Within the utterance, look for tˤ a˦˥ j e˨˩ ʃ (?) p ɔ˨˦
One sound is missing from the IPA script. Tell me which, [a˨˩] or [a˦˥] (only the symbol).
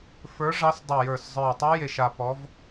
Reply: a˨˩